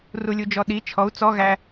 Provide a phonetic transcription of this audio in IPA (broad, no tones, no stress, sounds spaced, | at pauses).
r u lʲ u d͡ʒ ɔ ɗ i t͡ʃʰ ɔ u̯ t͡s ɔ ɣ æ